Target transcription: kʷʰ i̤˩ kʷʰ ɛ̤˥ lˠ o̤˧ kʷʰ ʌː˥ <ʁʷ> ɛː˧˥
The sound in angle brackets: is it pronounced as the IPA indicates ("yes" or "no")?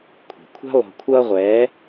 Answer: yes